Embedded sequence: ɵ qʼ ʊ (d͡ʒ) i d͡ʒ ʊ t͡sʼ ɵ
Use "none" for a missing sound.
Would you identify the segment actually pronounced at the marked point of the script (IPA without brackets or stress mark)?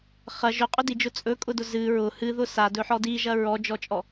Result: d